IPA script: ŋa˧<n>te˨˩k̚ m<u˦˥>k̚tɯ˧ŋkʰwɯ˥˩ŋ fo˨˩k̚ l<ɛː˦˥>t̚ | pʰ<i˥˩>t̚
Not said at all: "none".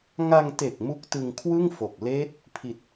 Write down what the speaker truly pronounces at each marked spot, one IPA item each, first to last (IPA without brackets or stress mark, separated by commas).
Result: ŋ, u˦˥, eː˦˥, i˨˩